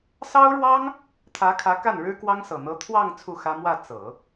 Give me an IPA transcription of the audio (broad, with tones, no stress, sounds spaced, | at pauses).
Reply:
s ɑ˥ ʊ̯ ɻ w ɑ˥ ŋ | t̪ʰ ä˧˥ kʰ ä˧˥ k a˥˩ n ɻ ɻ̩˥ k w ɑ˥ ŋ s ɤ˨˩ n̪ ɤ˧˥ t̪ʰ w ɑ˥˧ ŋ t͡sʰ u˥˩ x ä˥ m w ä˥˩ t͡s ɤ˨˩˦